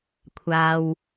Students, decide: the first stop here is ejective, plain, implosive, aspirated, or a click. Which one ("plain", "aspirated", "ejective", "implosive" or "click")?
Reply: aspirated